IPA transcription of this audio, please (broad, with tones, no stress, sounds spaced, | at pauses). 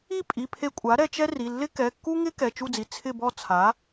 i˥˨ pʼ i˩˧˩ pʰ e˧ kʷʼ a˩˥ ɾ ɛ˧ t͡ʃ ɛ˥ r i˩˧˩ lː ɪ˥ k ɛ˩˧˩ kː u˥ ŋ ɪ˥ k ɛ˩˧˩ t͡ʃ u˥˨ d͡z i˩˧˩ t͡sʰ ɪ˥˨ b ɔ˥˨ t͡sʰ a˩˥